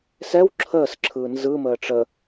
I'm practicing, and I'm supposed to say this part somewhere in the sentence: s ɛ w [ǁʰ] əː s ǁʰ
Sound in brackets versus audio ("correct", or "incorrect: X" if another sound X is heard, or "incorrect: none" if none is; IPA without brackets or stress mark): correct